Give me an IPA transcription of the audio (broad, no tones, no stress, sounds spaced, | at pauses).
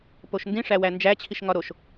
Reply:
p o ʃ n d ĩ ʂ æ w æ n d͡ʒ æ t͡ɕʰ i ʃ ŋ ɒ ɾ o ʃ